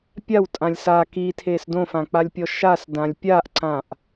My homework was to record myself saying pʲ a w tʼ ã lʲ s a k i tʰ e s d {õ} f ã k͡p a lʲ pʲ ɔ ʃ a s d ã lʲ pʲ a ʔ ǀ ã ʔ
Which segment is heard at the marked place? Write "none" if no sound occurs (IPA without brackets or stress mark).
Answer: õ